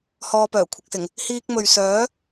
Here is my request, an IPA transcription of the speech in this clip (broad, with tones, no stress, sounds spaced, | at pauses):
h ɔː˧ p œː˨˩ kʷʰ ɪ˨ k̚ s ɪ˨˩ ŋ | h iː˧ k̚ m ɵ˨ ɥ s œː˨˥